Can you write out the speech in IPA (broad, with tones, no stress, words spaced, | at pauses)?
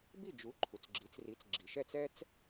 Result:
bi˥˩d͡ʒu˩˥ ǃʰu˩t͡sɡ͡ǁi˩˥t͡sri˩˥t͡s ɡ͡ǁi˩ʃɛ˥˩t͡sɛ˥t͡s